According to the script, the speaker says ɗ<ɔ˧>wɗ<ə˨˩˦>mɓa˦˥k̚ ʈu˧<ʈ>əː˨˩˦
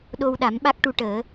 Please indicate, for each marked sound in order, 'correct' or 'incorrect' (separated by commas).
incorrect, incorrect, correct